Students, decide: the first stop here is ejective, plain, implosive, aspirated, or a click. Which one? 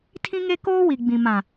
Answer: aspirated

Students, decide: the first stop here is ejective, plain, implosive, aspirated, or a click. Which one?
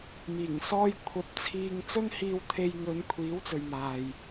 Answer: aspirated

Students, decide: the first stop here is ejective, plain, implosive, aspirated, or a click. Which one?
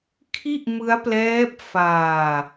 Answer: aspirated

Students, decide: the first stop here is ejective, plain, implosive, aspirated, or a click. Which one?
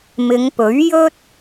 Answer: plain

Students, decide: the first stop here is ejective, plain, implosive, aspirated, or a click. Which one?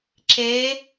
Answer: click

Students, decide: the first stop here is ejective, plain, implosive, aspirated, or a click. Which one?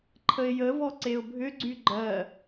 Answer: click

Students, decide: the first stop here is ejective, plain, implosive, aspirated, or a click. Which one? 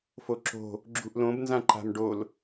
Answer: click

